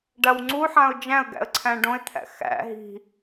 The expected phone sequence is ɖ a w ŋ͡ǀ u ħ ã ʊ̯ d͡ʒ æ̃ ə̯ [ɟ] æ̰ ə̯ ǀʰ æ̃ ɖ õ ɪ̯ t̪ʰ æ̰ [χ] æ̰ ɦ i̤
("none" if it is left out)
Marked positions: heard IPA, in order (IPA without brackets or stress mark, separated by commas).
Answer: ɡ, x